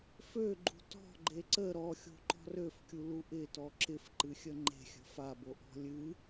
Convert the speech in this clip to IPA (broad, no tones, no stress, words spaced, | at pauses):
føɡ͡ǃṳ tɔ̤ɡ͡ǃe ǀə ɾɔxʲo̤ǃɔ̤ røfkʲulu ʔɪtɔ ǁɪfǃɨxʲə ŋ͡ǃe̤xʲə̤ faboʔɔ̤ lʲɨ